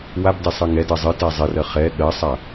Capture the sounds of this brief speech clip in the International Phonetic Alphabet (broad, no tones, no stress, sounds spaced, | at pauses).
w a b d ɪ sˤ ɨ ŋ ɛ d ɜ zˤ ɨ t ɛ zˤ ɪ r ɜ χ ɛ ɠ ɜ sˤ a